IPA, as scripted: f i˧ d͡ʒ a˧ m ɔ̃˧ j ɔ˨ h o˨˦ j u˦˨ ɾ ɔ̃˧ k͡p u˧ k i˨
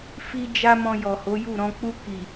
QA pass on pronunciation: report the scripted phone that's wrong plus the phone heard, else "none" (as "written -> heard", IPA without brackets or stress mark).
none